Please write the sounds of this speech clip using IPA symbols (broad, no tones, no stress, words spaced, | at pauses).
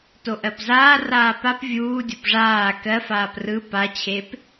toʔɜpzaː raːpap vʲuː dʲopʐaː kɜfaːp rɯ pat͡ɕʰep